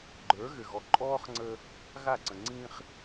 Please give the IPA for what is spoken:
ɡ͡ǃ ə˞˨˦ ɣ ɘ˨ ɣ ɔ˨ ǃʼ ɔː˦ χ ŋ͡ǀ ə˦ | ɣ a˦˨ ǀ ə̃˨ ŋ͡ǀ ĩː˦ χ

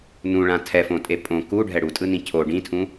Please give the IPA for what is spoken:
n ũ ɭ ã tʰ ɛ f õ tʼ e pʼ õ k u ɖʱ ɛ ɽ u tʼ ɯ n ĩ cʰ o ɖ ĩ tʰ ũ

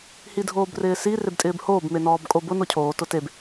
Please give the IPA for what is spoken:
h i dʱ oː b r ɪː s i r e b tʼ ɪː b h oː b m e n ɔː b kʼ o b ʊ n o cʰ oː t ʊ t e b

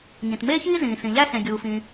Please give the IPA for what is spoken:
ɲ ĩ˩ t m eː˥ ç iː˥ z ĩː˩ s ĩ˩ ʎ æ˥ s ẽ˩ ɡʲ uː˩ f ĩː˩

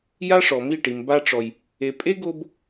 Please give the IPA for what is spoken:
j a˦ ʂ ɔ˨ m i˦˨ ʈ i˨ m b a˧ ʈ͡ʂ ɔ˨ j | e˨ pʼ e˦ ɡ o˧ b

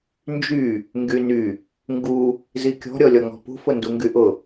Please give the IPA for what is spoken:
n d͡ʒ y | ŋ ɡ y n y | ŋ ɡ u | z i kʲ ɔ̤ ɾʲ ɔ lʲ ɔ ŋ ɔ̤ p ṳ f ʊ n d u ŋ ɡ y ʔ ʊ

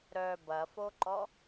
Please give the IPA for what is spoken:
ɾ œ b ɐ f o ǃ ɔ

